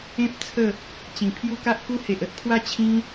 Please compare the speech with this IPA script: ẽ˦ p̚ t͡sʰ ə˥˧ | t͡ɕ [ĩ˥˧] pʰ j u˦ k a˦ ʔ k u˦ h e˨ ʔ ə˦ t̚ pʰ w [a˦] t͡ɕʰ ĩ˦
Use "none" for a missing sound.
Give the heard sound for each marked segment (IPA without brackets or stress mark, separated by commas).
ĩ˨˩, a˦